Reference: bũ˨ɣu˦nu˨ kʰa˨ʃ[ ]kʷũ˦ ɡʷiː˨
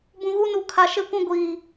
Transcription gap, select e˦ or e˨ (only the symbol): e˦